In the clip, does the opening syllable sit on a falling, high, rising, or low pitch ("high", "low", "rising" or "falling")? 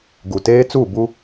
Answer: low